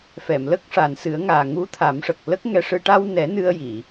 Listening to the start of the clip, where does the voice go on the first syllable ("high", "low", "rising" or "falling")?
low